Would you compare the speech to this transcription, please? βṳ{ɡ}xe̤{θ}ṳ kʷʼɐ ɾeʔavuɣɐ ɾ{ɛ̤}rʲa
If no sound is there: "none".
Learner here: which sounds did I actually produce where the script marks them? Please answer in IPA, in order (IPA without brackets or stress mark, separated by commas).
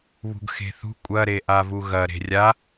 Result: ɡ, θ, e̤